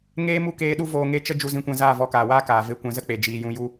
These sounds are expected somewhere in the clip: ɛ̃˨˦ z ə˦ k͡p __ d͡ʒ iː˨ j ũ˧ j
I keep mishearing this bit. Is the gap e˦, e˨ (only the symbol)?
e˨